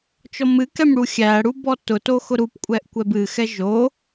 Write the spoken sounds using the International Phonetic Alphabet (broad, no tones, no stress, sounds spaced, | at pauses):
t͡ʃ ɔ m ɨ k ɛ m ɽ u xʲ æ ɽ u b ɔ t ʊ t o x ʊ ɾ u p kʷʼ ɛ ʔ kʷ ɛ b ɨ x ɛ ʒ o